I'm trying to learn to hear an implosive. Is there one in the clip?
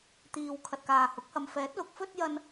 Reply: no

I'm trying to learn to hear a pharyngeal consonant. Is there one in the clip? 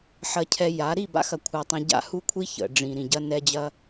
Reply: yes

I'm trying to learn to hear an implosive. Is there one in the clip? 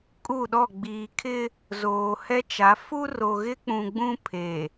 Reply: yes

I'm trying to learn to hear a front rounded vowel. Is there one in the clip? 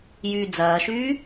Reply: yes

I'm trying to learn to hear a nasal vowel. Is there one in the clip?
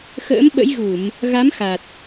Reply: no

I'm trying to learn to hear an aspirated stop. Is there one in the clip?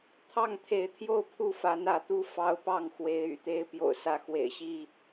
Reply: yes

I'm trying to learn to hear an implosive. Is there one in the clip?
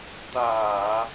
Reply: no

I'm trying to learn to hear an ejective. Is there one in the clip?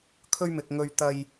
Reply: no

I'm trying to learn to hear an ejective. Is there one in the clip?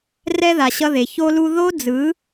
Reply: no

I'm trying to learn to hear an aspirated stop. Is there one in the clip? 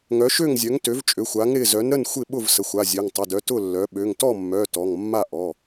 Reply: no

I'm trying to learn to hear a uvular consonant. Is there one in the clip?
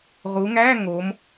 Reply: yes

